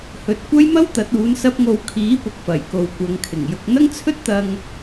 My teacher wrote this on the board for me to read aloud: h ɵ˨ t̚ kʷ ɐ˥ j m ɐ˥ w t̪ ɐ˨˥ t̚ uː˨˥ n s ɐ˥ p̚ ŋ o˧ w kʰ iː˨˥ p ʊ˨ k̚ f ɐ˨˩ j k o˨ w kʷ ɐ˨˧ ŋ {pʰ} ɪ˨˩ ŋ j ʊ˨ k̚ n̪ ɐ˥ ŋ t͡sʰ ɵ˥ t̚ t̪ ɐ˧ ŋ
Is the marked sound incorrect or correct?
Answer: incorrect